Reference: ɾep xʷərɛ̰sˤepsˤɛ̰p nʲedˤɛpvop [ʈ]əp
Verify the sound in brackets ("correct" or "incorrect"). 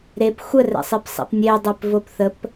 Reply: incorrect